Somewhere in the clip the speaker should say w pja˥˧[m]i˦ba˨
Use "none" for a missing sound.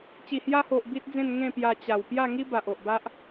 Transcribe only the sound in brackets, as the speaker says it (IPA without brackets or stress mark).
ŋ